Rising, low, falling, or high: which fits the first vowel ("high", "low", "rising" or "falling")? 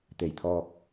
low